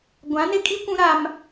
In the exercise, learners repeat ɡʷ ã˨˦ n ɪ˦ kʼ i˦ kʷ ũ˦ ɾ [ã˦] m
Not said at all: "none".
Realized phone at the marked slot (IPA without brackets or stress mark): a˦